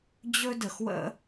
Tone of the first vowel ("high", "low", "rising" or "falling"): high